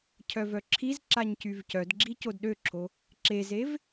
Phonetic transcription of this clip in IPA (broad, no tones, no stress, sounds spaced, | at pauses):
cʰ œ v œ ǁʰ i z ǁ a ɲ c y v c œ d ɡ͡ǁ i c o d ɗ ø ǁʰ o | ǁ e z e v